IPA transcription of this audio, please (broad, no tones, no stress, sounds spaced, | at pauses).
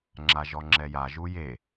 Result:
ŋ͡ǁ a ʒ ɔ ŋ͡ǁ ɛ j a ʒ u j e